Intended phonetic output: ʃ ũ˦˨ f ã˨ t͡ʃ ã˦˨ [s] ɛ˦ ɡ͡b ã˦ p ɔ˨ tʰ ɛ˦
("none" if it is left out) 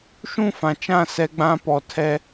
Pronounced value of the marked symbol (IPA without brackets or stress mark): s